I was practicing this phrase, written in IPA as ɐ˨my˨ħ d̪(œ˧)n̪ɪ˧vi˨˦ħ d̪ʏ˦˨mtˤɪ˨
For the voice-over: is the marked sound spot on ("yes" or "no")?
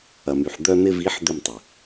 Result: yes